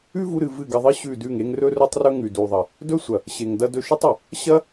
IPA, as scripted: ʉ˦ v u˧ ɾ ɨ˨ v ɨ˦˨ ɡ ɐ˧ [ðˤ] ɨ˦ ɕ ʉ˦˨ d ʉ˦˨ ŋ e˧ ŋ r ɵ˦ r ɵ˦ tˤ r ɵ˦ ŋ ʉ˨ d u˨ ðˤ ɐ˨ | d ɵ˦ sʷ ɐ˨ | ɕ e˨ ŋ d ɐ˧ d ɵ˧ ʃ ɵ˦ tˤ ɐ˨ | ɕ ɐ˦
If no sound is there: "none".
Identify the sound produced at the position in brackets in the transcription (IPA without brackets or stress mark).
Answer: ðˤ